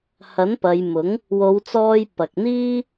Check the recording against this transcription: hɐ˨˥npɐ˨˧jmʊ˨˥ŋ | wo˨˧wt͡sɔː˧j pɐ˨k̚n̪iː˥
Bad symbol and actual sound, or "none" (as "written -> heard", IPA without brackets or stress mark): none